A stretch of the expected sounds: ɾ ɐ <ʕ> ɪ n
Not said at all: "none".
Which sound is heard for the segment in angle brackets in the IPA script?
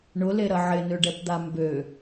ʕ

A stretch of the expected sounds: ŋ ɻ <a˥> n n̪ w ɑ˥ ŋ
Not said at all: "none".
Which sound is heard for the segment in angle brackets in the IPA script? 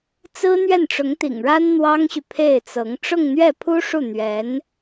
a˥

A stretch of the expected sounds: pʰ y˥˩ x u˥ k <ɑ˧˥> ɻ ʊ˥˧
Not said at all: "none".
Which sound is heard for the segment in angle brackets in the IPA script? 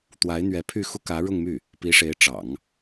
ä˧˥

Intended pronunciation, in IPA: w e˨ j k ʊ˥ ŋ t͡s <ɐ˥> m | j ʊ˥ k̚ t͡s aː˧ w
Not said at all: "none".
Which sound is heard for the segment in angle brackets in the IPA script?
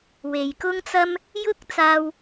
ɐ˥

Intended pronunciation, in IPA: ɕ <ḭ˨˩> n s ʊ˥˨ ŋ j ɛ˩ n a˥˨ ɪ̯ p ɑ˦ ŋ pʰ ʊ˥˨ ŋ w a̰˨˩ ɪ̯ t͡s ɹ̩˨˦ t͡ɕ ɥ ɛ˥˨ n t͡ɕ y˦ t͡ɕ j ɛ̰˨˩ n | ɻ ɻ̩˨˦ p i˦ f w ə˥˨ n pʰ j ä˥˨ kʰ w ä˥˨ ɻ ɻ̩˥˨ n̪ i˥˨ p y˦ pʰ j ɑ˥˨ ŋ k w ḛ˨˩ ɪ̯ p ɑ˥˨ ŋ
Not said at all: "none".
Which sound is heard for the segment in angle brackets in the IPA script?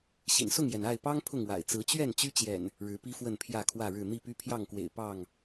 ḭ˨˩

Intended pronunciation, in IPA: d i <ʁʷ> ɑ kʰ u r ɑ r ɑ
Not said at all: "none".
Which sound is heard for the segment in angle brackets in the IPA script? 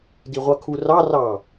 ʁʷ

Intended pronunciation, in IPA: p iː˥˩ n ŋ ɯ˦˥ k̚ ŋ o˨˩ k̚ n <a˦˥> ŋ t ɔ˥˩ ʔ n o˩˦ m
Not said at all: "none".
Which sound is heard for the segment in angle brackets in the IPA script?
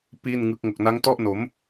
a˦˥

